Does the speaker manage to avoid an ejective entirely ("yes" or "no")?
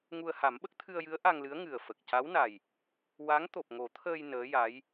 yes